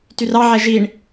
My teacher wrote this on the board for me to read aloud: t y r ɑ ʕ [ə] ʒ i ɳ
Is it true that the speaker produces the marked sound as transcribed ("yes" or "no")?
no